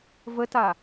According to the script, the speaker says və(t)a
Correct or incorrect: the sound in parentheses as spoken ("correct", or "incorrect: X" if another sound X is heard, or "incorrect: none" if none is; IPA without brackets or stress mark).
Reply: correct